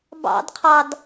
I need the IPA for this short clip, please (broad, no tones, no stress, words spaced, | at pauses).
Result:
bɑ̰dqʰɑd